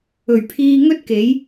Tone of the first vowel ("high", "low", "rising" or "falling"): low